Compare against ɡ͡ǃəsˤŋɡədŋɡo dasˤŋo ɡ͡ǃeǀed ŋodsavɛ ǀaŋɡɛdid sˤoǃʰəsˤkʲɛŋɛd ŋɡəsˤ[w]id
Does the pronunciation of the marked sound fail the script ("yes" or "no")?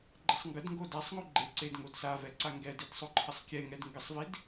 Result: yes